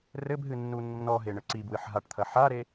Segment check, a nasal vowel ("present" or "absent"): absent